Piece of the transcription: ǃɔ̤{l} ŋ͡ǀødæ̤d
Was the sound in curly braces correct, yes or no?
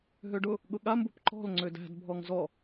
yes